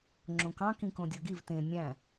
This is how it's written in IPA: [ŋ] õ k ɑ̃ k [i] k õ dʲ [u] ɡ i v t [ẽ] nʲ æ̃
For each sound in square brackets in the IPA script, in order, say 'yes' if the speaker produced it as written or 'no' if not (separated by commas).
no, no, no, yes